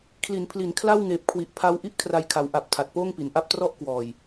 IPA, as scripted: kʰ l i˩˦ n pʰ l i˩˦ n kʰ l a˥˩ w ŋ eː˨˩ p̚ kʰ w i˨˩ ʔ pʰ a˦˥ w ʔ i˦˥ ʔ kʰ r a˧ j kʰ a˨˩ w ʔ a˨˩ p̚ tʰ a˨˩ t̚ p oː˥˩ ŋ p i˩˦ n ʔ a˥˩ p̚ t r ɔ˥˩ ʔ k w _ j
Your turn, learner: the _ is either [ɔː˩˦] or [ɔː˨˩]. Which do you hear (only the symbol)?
ɔː˨˩